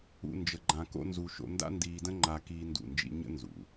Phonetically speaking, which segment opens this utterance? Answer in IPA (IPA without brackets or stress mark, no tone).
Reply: ṵ